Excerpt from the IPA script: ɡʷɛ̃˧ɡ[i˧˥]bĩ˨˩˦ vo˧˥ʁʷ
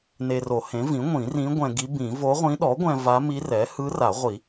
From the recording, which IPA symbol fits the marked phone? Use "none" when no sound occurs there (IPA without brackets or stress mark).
i˧˥